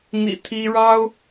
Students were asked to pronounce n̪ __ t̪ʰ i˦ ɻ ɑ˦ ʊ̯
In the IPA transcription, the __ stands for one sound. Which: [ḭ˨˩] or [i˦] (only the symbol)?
ḭ˨˩